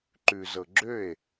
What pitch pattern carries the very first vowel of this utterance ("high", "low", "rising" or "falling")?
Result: low